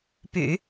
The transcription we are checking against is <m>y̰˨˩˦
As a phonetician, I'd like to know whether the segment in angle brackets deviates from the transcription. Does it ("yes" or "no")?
yes